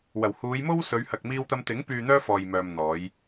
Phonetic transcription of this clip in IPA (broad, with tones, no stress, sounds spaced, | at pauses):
w ɐ˨˩ w h uː˨˧ j m o˥ w s ɵ˨˧ ɥ h ɐ˨ k̚ m iː˧ w t̪ ɐ˧ m t̪ ɪ˨˥ ŋ p yː˨ n̪ œː˧ f ɔː˨ j m œː˨ m n̪ ɔː˨˧ j